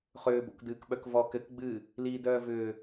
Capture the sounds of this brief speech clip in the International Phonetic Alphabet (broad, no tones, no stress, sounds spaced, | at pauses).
χ ʏː b o̰ k d ɨː k ɓ œ k v ɔ k ɘ k ɡ͡b ɨː | l iː d œː v ʏː